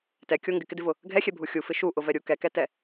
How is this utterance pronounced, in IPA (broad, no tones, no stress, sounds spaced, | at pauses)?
t ɛ kʲ o ŋ ɡ ɪ k ɪ d ɪ v ʊ | ɡʱ ɛ xʲ ɛ bʱ u xʲ u f ɪ ʃ u ʔ ʊ v ɛ ɾʲ u k ɛ k ɛ t ɛ